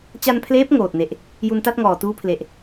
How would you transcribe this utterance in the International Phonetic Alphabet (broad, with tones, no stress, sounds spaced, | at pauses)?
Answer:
t͡ɕ a˧ n pʰ l eː˦˥ p̚ ŋ oː˨˩ t̚ n e˨˩ ʔ | j u˧ n t a˥˩ t̚ ŋ ɔː˨˩ t uː˧ pʰ l e˨˩ ʔ